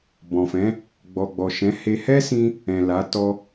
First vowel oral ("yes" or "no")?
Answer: no